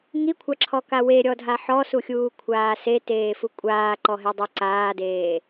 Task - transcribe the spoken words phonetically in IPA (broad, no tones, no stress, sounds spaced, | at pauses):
ŋ i kʷʰ a ǁʰ ɔ k a w e ɾʲ ɔ dʱ a ħ ɔ s u xʲ uː kʷʰ aː s e t eː f u kʷʼ aː ǃ ɔ ɦ e dˤ u ǀ aː d eː